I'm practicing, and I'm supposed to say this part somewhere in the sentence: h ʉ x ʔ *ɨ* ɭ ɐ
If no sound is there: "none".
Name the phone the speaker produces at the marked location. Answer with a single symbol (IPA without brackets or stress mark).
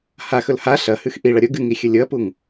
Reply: i